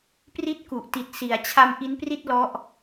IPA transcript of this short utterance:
p r i˦˥ t̚ k u˨˩ ʔ t i˨˩ t̚ s i˩˦ a̯ t͡ɕʰ a˧ m ʔ i˦˥ n p r i˥˩ t̚ l ɔ˦˥ ʔ

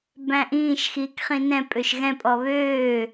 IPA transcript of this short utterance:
b æ̃ ʔ ĩː ʃ x iː k χ ĩ n ɛ̃ pʼ ø ʃ ɣ ɛ̃ pʼ ɔ β øː

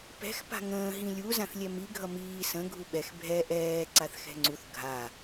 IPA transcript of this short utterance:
p ɛ̤ x p a̤ ŋ ə̃ː ɦ ĩ lʲ u z ã θ lʲ ɛ m i ɡʱ ʌ m iː s ə̃ ɡʱ u ɓ ɛ x bʱ ɛ ʔ ɛː ǀ a θ x ɛ̤ ŋ͡ǀ u θ ɡʱ a

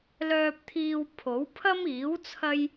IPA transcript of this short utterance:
l œː˧ p̚ t̪ʰ iː˧ w pʰ o˨˥ w pʰ ɐ˥ m iː˨˥ w t͡sʰ ɐ˥ j

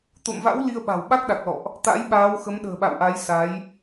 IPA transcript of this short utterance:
t̪ o̰˧˨ m v a̰˧˥ w l i˧ ə̯ ɓ a̤˨˩ w ɓ a˦˥ k̚ ɗ a˨˩ k̚ l ɔ̰˧˨ ʔ | t̪ a̰˧˥ j ɓ aː˨˦ w x ə˨˦ m ɗ ə̤ː˨˩ ɓ a̰˧˨ w ʔ a˨˦ j s a˨˦ j

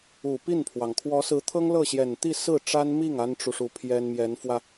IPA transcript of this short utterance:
u˨˩ p i˥˩ n pʰ w ɑ˩ ŋ kʰ w ɔ˧˥ s ɹ̩˧˥ t̪ʰ ɤ˥ ŋ l ɤ˥˩ ɕ j ɛ˨˩ n t̪ i˥˧ s ɹ̩˥˩ ʈ͡ʂ a˥ n m i˥˩ ŋ a˥ n ʈ͡ʂ u˨ ʂ u˧˥ pʰ j ɛ˥ n m j ɛ˧˥ n f w ä˧

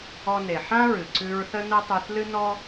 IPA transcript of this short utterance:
ɔ˧ n e˩ ħ ã˥ ɹ ɨ˩ ǀ ʉ˧ ɹ θ ə˥ n ə˥ tˤ ʉ˧ θ l ɨ˥ n ɔ˥

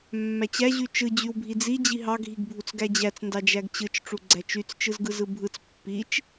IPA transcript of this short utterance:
mː æ t͡ɕ æ ʑ y t͡ʃ ɯ d͡ʑ y w bʱ i d͡z i d͡ʑ i ɦ ɑ ɡʱ i ɡ bʱ u t͡s ɡ æ d͡ʑ æ t͡s n d ɑ d͡ʒ æ ɡ t͡ɕ ɯ t͡ʃ ʈ͡ʂ u ɡ͡ǀ æ t͡ʃ y t͡s t͡ʃ ɯ z ɡ ɯ z ɯ bʱ ɯ t͡s pː i t͡ʃ

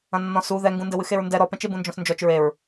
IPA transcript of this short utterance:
ɐ̃ nː ɔ̃ s u ð ɛ ŋ ɡ ũ n d ɘ w ɨ x e ɹ n d ɛ ɾ ɔ p ɛ̃ t͡ʃ e b ũ n d͡ʒ ɔ̃ s n d͡ʒ ɔ t͡ʃ ɹ e ɹ

